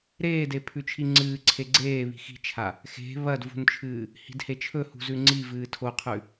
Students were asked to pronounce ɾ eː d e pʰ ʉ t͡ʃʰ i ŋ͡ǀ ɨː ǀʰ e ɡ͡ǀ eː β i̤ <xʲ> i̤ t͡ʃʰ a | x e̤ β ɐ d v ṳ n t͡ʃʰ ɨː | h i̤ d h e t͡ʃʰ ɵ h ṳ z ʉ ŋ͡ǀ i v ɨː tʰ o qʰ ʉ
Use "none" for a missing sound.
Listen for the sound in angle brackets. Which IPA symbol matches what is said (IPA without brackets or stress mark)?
x